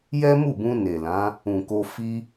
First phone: j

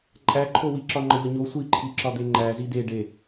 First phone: ǃʼ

